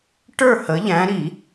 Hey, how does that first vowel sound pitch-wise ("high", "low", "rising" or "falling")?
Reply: falling